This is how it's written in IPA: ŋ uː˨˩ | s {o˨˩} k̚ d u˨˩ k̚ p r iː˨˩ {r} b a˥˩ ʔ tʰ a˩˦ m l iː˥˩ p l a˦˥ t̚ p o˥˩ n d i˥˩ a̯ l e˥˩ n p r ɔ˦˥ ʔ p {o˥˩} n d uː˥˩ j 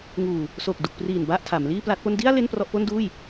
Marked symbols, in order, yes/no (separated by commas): yes, no, yes